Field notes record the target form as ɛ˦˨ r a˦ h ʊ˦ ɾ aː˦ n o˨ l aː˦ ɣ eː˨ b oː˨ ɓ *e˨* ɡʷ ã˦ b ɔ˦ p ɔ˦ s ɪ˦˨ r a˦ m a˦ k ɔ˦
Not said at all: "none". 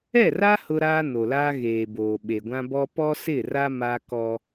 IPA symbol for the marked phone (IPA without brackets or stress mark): e˨